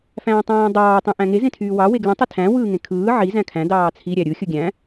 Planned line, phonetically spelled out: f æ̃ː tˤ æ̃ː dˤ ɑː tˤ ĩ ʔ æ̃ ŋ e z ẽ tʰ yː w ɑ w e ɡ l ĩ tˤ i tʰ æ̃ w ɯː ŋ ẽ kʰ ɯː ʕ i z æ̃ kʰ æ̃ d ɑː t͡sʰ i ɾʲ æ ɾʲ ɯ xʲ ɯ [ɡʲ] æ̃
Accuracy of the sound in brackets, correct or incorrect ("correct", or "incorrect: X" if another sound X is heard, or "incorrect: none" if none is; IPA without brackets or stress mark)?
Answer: correct